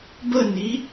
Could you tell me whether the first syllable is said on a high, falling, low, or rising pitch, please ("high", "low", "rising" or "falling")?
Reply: falling